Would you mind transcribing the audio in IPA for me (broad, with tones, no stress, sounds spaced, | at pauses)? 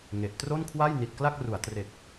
ŋ e˨˩ ʔ t r o˥˩ n kʰ w a˥˩ j n i˨˩ t̚ k l a˥˩ k̚ r u˩˦ a̯ t r e˨˩ k̚